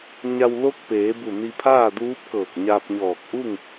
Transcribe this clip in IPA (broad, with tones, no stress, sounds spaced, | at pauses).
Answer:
ɲ a˧ w l o˧˥ k̚ p eː˩˧ b u˧˩ n i˧ pʰ aː˥˨ d uː˧˥ p̚ k ɤː˧˩ k̚ ɲ aː˧ p̚ ɲ ɔː˧˩ k̚ ʔ u˥˨ ŋ